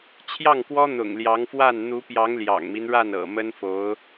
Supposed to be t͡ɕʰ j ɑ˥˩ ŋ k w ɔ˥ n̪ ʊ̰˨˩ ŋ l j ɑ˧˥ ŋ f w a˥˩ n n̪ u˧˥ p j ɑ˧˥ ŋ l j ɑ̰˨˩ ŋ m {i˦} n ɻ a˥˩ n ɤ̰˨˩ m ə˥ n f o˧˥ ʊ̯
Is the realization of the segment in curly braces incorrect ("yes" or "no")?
no